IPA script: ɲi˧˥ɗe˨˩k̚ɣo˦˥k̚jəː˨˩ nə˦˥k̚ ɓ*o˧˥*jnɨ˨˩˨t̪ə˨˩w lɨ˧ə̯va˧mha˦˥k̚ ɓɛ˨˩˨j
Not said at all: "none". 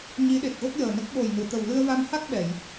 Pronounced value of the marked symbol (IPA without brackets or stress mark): o˨˩